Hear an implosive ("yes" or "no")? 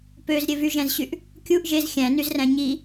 no